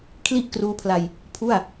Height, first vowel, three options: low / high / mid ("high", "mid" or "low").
high